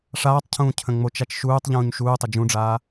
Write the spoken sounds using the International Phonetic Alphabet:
ʂaːtˤcʰũː cʰə̃ŋ͡mot͡ʃat͡ʃ ʃuːtˤ ʎũːɲʃuːtˤɪ d͡ʒũɖ͡ʐaː

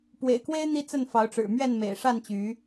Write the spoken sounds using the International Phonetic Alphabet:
pwḛ˨˩ɪ̯kwe˦ɪ̯ n̪i˦t͡sə˥˨nfɑ˨˦ʊ̯ʈ͡ʂɻ̩˨˩ mɥɛ˥˨n mḛ˨˩ɪ̯ʂa˥˨nt͡ɕy˨˦

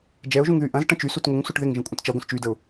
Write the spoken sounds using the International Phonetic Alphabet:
d͡ʒɛʊ̯ʒũŋ ðyʔɐ̃z ʈə̃t͡ʃysut ŋʊŋsuʈ ðɪŋʒə̃kʷʼə̃t t͡ʃɐɡʷə̃s t͡ʃydəʊ̯

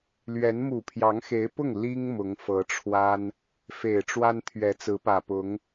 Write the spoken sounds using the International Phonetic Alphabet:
lɥɛ˧˥n mu˨˩pʰjɑ˧˥ŋxe˧˥ɪ̯pʊ˥˩ŋ li˥ŋ mʊ˧˥ŋfɤ˧˥ʈ͡ʂʰwa˥n | fe˨˩ɪ̯ʈ͡ʂwa˥nt̪ʰɥɛ˧˥ t͡sɹ̩˧˥pä˨˩pʊ˧˥ŋ

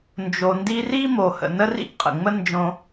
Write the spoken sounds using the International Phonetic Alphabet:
nd͡ʒo˨ndi˦ri˥ mo˨hə̰˨ nə˥rḭ˥ʔqʼə̰˩ŋ͡mə˥ nd͡ʒõ˦

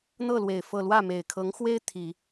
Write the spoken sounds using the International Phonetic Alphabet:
n̪ɤ˥˩lwe˨˩ɪ̯ fɤ˥˧ lwä˥˩me˨˩ɪ̯kʰɤ˧˥ŋxwe˥ɪ̯ t̪ʰi˨˩˦

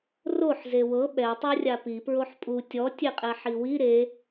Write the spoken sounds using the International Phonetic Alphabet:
roħ zewɤ ɓɛ tˤorʲapi pɹoħpʼu tʲɔ tʲeqʼɛħiwi ɾe

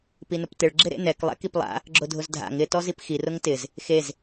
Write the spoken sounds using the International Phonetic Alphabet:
pinʊptɪɭ ɡ͡ǁɪɾḛnɛk lˠɛ̰kiplˠa̰ | ɡ͡ǁʊdʱʊzdʱa̰ŋ ɪ tɔzipxi rʊŋtɪz | xez

